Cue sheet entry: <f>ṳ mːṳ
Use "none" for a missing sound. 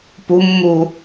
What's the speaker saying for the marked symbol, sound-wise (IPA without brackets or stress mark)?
p